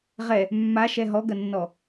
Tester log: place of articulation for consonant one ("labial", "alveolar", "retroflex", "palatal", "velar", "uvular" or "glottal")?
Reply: uvular